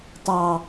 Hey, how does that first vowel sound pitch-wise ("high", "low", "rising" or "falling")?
low